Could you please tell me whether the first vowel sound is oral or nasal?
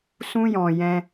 nasal